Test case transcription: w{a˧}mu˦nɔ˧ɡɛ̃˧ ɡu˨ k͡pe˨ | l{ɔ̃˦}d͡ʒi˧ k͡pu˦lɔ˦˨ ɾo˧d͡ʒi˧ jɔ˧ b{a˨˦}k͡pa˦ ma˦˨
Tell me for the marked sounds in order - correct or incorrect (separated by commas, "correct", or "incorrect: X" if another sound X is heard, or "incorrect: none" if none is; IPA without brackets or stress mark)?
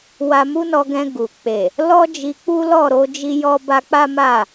correct, incorrect: ɔ˦, incorrect: a˧